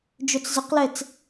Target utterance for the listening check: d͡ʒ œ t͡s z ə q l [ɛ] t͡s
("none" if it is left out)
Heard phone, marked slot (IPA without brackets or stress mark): ɛ